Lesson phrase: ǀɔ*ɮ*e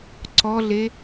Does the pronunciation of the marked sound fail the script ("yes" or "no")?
no